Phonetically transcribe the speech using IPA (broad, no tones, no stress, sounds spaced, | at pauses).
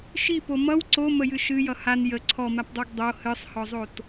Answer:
ʃ i p o m ʌ w ǀ o m ə j ɨ ʃ ɨ j ʌ h a n j ə ǀʰ ɔ m a p dˤ o ɡ dˤ o h ɨ sˤ h ɔ zˤ o t